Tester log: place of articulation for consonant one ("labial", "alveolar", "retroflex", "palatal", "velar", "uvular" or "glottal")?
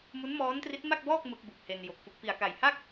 labial